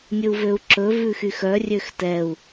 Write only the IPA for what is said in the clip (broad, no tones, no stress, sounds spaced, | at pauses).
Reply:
nʲ ɵ u̯ v ø u̯ ǁ ɵ v ʉ x y x œ rʲ ø x t ɛ u̯